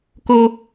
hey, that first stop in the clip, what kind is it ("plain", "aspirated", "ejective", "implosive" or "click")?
plain